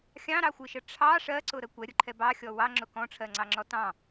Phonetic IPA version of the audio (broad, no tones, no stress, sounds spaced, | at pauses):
xʲ ɑ̃ ɾ ɑ xʷ ɨ ʃ ə ʈ͡ʂʰ ɑ ʂ ɜ ǀ ʊ ɾ ə kʷ ɛ ɾʲ ʊ ǃʰ ɛ b ɑ xʲ ɔ w ɑ ŋ͡ǁ ʊ k ɔ̃ ʈ͡ʂʰ ɜ ŋ͡ǀ ɑ ŋ͡ǁ ɔ t ɑ̃